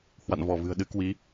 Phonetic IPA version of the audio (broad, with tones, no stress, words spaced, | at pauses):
hwa̰˧˨nvɔ˧˩vɨ̤˨˩ə̯ ɗɨ˧ kwi˨˦